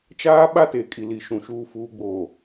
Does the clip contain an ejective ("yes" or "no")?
yes